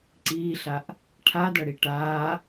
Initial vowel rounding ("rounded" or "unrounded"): unrounded